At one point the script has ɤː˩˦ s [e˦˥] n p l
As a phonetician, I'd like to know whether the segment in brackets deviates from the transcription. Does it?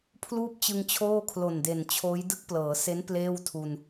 no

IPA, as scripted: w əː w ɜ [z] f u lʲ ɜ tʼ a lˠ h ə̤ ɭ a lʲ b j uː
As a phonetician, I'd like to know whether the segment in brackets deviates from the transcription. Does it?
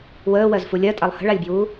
no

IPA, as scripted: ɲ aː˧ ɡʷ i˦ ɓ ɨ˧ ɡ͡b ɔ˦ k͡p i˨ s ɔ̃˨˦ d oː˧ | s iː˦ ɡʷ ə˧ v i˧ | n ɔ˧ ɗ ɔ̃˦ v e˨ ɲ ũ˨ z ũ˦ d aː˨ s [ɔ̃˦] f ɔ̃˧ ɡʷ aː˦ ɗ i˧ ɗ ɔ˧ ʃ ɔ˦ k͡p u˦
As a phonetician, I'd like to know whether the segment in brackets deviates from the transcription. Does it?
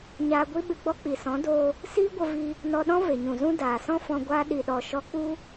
no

